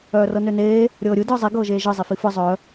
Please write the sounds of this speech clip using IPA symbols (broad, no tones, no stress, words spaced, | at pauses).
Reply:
œːrɤnøneː | ɾʲɤːɾʲɯ dɯːzˤi ɡɤːʒeːʒɯ zˤififɯ zˤœ